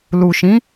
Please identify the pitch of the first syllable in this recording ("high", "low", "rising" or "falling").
low